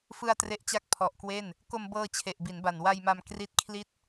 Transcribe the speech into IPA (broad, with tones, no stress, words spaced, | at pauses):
fɯ˧a̯ tre˦˥ʔt͡ɕa˥˩k̚ pʰɔ˨˩ʔkwe˥˩n | ko˧mbɤː˧ t͡ɕʰe˨˩ʔbi˩˦nba˨˩n wa˧jma˧m kri˦˥t̚kʰli˥˩t̚